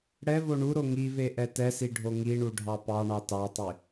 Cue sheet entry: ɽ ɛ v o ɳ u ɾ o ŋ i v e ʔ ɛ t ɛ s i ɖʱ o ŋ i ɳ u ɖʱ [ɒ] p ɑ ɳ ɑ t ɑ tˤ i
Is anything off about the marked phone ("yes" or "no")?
yes